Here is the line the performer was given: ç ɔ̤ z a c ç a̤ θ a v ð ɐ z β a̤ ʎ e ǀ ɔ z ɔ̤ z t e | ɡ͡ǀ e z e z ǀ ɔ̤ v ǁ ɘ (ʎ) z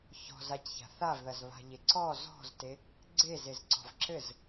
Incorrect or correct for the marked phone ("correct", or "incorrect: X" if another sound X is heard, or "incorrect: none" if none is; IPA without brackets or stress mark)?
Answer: incorrect: none